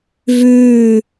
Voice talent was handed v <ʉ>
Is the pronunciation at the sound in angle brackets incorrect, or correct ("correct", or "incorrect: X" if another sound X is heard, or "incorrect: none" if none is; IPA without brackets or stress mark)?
correct